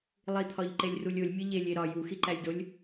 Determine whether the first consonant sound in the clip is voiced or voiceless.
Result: voiced